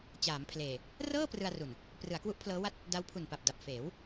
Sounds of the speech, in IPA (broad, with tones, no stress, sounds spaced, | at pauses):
t͡ɕ aː˩˦ m pʰ l eː˨˩ | r ɤː˥˩ p r ɯ˧ a̯ r u˨˩ n | p r ɯ˩˦ a̯ k w u˦˥ ʔ pʰ l ɤː˦˥ w a˥˩ t̚ | d a˦˥ w pʰ u˨˩ n p a˨˩ p̚ d a˨˩ p̚ f eː˩˦ w